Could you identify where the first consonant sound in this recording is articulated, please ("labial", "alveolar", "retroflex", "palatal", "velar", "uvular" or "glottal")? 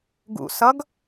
velar